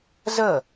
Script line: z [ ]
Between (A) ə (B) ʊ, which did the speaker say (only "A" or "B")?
A